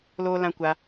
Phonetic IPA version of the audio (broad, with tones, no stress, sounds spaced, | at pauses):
l oː˧ l ã˧ kʷ a˧